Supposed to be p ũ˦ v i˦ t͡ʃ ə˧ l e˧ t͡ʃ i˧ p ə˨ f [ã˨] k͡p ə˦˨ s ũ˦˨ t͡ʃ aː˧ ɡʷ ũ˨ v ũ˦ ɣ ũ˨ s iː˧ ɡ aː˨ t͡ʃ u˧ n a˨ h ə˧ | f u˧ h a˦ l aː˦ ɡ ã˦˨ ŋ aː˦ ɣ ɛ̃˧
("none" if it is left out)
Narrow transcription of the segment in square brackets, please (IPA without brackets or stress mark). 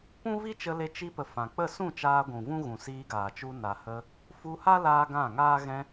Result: ã˨